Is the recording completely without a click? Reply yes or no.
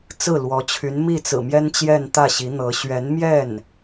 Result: yes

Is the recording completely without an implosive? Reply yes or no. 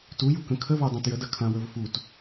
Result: yes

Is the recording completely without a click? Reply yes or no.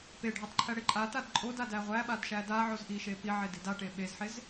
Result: no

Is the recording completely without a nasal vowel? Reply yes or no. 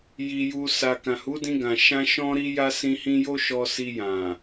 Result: no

